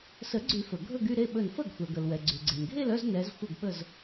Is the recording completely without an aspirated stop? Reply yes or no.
yes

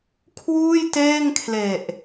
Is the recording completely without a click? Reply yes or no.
yes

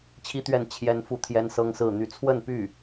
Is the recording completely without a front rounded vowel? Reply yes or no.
no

